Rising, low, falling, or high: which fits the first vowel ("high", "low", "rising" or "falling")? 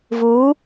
rising